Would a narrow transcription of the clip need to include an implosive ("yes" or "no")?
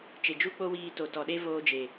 yes